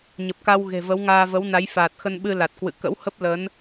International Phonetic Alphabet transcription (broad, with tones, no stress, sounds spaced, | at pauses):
ɲ ə˨˩ p̚ k a˧ w ɣ e̤˨˩ v ə˨˦ w ŋ aː˧ v ə˨˦ w n a˨˦ j f aː˨˩ t̚ x ə˧ n ɓ ɨ˧ l a˨˩ t̚ k w ɨ̰˧˨ k ə̰˧˥ w h ə˦˥ p̚ l ə˨˦ n